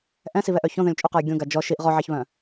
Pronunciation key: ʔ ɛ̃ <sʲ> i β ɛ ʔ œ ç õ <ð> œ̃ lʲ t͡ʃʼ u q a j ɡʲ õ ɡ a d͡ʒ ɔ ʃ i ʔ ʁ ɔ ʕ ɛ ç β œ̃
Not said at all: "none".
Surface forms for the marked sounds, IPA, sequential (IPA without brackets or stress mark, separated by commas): s, ð